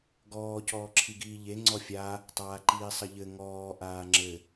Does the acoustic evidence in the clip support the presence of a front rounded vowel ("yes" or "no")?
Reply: no